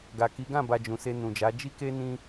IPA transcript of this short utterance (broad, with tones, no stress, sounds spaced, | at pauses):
ɡ a˨ k i˨˦ ɡ ã˦˨ b a˨ d͡ʒ ũ˨ s e˧ n ũ˨ d͡ʒ a˨˦ d͡ʒ i˦ k e˦ n ĩ˦